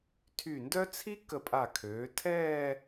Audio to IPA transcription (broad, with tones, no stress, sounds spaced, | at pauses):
tʰ y˧˩ n d œ˥ t͡sʰ i˥ k ə˧˩ pʼ a˧˩ kʰ øː˩˧ tʰ ɛː˥˧